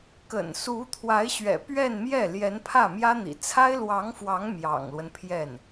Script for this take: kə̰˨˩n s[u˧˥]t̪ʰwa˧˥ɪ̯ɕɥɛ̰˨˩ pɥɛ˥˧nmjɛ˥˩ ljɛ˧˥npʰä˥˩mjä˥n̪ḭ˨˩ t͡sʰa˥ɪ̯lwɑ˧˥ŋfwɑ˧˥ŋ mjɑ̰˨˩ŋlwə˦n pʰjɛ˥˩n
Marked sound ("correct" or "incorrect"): correct